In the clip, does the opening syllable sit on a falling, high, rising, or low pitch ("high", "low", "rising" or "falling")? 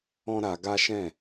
high